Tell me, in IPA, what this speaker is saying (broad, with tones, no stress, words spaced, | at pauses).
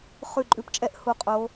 χʉ˧˩˧ǃʼʉ˨˦pt͡ʃʼɛ˨˦ʔ hu˨˦qʼo˨˦